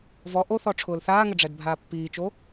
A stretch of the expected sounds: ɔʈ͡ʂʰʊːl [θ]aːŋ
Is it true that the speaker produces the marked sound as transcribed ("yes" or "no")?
yes